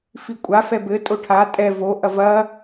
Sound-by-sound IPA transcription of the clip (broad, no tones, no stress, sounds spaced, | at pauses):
f i kʷʼ a f ɛ b ɘ tʼ o ʈʰ a tʼ ɛ v o ʔ ɐ v ɐ